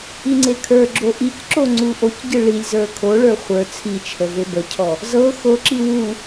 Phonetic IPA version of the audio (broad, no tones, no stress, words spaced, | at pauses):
iŋ͡ǀekʰə˞ɡ͡ǁo ʔicǁo ŋ͡ǀuʔocɟɯ ɭilʲzə˞ kʰoɭə˞ χʷə˞ t͡sʰit͡ʃʰə vebəcʰɔ | zɤ xoǁi wu